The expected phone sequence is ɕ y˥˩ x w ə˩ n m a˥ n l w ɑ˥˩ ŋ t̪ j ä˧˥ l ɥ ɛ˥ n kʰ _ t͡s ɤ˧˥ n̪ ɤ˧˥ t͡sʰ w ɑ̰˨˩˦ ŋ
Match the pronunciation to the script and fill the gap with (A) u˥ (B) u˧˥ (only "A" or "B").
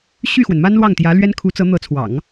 B